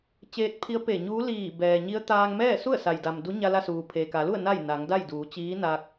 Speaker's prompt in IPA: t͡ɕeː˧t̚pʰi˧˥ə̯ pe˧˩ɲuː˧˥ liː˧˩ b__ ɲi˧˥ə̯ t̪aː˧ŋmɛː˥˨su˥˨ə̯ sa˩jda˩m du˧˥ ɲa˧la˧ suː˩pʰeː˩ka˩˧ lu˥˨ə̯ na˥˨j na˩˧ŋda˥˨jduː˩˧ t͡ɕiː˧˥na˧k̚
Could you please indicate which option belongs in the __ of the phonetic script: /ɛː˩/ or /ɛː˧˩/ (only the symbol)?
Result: ɛː˩